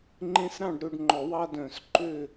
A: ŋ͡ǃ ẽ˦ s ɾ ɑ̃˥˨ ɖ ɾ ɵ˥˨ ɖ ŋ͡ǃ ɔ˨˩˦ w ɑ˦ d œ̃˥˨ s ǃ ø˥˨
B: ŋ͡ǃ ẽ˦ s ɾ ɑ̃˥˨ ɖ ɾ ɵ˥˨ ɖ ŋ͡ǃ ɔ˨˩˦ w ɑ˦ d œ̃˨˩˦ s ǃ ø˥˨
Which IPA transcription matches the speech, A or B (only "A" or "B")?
B